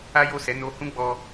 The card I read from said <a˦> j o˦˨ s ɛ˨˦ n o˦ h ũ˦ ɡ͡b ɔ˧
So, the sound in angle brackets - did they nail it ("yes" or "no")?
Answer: yes